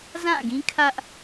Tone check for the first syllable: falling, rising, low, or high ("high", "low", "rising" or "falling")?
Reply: falling